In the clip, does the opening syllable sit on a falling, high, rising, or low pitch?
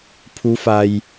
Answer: rising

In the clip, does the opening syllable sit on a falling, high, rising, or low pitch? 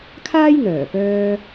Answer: high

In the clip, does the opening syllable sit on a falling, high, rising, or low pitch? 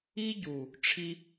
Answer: high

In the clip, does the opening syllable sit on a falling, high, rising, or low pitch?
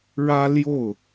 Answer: high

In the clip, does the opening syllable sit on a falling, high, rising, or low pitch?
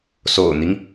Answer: low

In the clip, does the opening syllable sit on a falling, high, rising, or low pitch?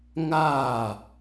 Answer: falling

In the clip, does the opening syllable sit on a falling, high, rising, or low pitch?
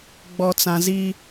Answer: low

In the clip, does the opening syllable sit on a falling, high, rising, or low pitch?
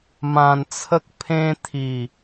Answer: low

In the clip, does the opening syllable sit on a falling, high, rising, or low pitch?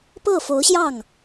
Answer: falling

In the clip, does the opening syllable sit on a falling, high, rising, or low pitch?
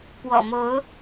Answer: low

